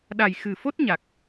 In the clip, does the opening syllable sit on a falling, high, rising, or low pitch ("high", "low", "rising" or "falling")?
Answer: low